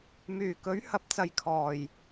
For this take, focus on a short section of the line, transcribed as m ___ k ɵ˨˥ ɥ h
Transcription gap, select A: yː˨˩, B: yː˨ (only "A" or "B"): A